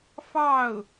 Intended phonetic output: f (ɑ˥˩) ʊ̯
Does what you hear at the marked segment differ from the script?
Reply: no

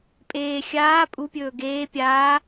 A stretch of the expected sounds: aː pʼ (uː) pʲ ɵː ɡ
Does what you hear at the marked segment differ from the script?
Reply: yes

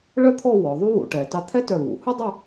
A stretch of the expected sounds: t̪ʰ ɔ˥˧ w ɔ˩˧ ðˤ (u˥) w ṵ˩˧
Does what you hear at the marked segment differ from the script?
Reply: no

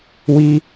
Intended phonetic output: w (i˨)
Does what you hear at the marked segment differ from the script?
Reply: yes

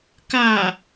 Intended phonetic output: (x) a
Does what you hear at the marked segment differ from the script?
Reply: yes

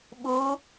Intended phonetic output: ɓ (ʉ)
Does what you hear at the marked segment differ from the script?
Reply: yes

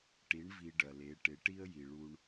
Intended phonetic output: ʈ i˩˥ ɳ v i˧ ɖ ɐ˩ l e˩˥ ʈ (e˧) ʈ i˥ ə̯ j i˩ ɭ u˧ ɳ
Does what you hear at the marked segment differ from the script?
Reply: yes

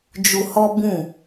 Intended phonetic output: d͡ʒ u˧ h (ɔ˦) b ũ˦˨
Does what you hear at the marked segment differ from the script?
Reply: no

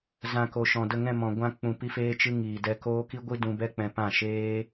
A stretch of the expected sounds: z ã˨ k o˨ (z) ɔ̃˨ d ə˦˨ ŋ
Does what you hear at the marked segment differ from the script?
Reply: yes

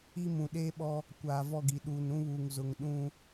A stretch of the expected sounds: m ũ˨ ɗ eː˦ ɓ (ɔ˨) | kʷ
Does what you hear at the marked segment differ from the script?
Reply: yes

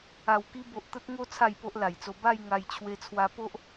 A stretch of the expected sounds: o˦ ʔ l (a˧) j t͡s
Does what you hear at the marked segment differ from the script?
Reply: yes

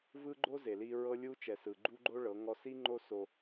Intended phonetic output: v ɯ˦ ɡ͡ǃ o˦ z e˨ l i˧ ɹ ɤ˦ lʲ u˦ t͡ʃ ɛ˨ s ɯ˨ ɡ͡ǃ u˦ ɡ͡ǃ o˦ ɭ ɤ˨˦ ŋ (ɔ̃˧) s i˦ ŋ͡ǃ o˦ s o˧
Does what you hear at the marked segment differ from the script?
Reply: yes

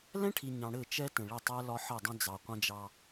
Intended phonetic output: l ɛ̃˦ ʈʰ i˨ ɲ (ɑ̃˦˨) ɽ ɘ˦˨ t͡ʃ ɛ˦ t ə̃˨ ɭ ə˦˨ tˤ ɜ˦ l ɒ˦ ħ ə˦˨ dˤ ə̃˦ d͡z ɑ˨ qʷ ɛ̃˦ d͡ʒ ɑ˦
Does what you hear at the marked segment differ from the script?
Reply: yes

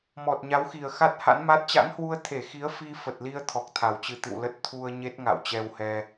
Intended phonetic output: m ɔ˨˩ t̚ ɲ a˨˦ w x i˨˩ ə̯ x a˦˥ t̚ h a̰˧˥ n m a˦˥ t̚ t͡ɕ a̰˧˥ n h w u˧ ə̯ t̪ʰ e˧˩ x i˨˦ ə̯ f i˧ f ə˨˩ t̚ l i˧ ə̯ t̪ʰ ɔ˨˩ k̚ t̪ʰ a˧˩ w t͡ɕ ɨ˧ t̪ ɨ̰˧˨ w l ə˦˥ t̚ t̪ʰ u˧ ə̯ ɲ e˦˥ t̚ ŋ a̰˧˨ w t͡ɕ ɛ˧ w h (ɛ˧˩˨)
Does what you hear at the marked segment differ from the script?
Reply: yes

